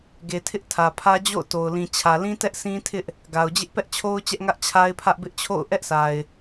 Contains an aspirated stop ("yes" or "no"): yes